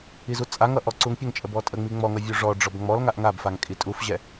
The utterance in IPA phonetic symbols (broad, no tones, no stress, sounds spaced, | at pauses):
i z u t͡sʼ a ŋ ʌ ʔ ɔ ǀ u ŋ pʲ ə ŋ t͡ʃʼ ə b ɔ tʼ ə ŋ͡m i ŋ͡m ɔ ŋ ʌ vʲ u ʐ ɔ ɖ͡ʐ ɔ b ŋ͡m ɔ l ŋ a ʔ ŋ a b f a ŋ kʼ i tʼ u f ʑ ɛ